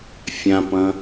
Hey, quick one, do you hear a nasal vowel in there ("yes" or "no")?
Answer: yes